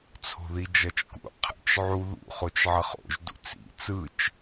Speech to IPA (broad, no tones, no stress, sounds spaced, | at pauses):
t͡sʰ o̤ ð i d͡ʒ ʌ t͡ʃ k ṵ qʰ ə̰ t͡ʃ ʕ u ð ṵ χ o t͡ʃ ʕ ʌ χ o̰ ʒ d ṵ t͡s ḭ t͡s ɯ t͡ʃ